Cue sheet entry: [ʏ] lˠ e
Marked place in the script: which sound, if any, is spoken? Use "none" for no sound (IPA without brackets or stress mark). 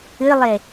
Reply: ɨ